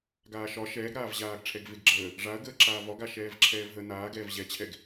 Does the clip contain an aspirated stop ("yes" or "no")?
yes